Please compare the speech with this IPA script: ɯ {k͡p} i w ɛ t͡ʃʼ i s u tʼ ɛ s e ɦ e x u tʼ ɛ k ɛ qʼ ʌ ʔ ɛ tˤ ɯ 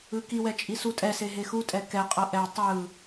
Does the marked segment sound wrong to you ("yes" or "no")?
yes